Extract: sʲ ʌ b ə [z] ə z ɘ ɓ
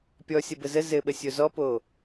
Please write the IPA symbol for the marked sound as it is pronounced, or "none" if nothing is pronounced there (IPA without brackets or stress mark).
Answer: z